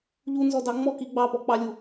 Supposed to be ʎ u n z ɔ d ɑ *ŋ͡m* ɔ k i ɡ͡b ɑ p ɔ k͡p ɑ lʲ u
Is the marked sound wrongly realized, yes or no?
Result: no